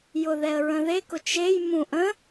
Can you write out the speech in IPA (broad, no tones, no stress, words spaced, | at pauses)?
jʊðɛə̯ɹə̃ðek ʊt͡ʃej mũʔə̃